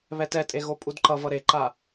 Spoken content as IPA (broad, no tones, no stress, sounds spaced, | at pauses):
β ɛ t ɛ tʼ e ɣ o pʼ u d ǃ ʌ v ʌ ɾ e ǃ a